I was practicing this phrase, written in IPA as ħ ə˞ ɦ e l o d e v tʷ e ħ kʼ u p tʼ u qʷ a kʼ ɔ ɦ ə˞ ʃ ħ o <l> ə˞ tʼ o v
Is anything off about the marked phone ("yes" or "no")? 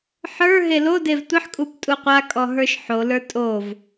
no